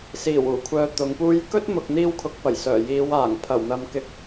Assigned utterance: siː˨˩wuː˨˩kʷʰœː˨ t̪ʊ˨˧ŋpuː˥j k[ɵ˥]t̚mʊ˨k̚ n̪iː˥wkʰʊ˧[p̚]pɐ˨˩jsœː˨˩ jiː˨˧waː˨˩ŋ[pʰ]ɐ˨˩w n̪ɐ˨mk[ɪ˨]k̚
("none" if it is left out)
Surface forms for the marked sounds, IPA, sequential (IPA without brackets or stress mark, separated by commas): ɵ˥, k̚, pʰ, ɪ˨